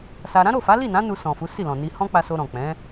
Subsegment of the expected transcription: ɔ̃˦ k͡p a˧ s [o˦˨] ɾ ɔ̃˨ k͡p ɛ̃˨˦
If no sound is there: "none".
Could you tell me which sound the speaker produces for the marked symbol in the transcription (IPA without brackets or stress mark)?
o˧